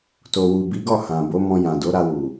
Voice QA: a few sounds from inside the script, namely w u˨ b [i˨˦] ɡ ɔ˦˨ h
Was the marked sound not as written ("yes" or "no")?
no